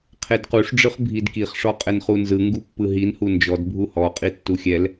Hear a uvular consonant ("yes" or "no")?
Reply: yes